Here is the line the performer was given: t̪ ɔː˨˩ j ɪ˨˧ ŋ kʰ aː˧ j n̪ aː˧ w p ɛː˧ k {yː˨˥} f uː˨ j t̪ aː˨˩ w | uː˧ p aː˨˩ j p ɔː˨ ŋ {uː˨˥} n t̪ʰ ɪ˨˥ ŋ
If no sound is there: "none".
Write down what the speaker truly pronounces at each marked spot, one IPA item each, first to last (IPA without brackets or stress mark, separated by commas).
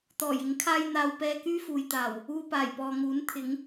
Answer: yː˥, uː˨˥